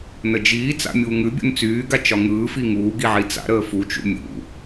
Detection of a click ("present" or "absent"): absent